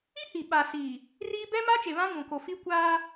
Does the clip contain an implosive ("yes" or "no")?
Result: yes